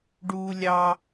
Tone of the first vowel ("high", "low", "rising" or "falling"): high